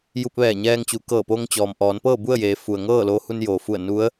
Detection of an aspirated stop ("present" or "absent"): absent